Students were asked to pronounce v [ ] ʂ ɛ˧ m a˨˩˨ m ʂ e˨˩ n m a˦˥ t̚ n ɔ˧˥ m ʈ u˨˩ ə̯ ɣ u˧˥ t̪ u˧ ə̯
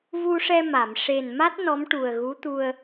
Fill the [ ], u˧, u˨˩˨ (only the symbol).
u˧